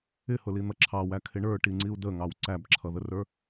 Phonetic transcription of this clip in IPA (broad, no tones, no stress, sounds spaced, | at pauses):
ɪ h ʊ l i n̪ ʌ ǁʰ ɑ w æ kʰ ɪ ɳ ə˞ ʈ i ŋ͡ǀ i u̯ d ə ŋ ɑ w ǀ æ b ǁʰ ʌ ð ə r ə˞